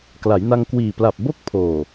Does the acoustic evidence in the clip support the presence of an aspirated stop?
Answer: yes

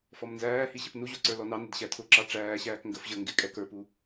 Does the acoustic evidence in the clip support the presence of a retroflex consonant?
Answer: yes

